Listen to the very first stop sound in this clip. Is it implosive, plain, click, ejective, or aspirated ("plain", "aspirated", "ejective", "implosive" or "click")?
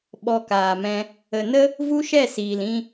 implosive